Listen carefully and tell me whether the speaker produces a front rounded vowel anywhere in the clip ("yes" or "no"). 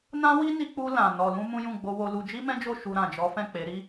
no